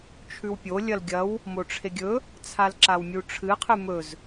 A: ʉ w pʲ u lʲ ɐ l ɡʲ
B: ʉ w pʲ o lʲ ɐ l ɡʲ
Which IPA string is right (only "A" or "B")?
B